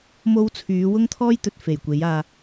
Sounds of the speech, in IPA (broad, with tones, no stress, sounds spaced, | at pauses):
m o˥ w t͡sʰ yː˨˥ w ʊ˥ ŋ t̪ʰ ɔː˥ j t̪ ɵ˨ t̚ f e˨˩ j kʷ e˨˥ j aː˧